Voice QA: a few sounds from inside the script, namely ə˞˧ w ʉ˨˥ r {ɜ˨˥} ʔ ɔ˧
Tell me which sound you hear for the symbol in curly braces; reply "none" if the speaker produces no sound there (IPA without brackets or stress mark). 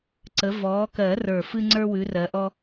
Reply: ɜ˨˥